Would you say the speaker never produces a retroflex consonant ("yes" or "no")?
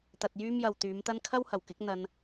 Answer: yes